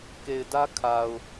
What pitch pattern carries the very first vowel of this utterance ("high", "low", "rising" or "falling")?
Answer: low